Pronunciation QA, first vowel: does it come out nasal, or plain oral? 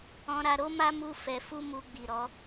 nasal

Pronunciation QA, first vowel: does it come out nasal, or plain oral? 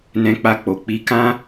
nasal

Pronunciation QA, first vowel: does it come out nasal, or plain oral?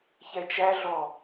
oral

